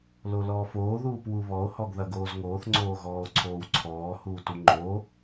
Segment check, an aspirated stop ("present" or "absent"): present